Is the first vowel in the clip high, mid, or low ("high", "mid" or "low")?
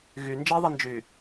high